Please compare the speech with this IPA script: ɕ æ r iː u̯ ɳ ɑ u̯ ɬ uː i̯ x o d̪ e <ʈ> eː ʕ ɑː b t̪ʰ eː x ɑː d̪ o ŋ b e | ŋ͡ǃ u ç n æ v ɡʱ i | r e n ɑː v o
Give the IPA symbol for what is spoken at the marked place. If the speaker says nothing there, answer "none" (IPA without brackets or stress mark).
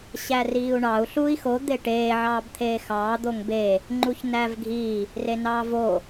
ʈ